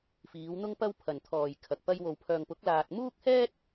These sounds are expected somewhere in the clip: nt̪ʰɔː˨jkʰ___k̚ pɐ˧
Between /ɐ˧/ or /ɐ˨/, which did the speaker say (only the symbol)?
ɐ˨